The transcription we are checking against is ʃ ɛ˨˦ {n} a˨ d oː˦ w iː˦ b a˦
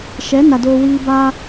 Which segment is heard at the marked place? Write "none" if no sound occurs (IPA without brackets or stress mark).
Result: n